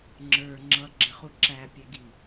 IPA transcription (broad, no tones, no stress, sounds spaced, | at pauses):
ŋ͡ǁ ə˞ ŋ͡ǁ ʌ ɡ͡ǁ ɪ χ u ǁ æ pʲ ɛ ɡ i